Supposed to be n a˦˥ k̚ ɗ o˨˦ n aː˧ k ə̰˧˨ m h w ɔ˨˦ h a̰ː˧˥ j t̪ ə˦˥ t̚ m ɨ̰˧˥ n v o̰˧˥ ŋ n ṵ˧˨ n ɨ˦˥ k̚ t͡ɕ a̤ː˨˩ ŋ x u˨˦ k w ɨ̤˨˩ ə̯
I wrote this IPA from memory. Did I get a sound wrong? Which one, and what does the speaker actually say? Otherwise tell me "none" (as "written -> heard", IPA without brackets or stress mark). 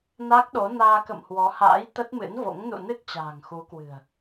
none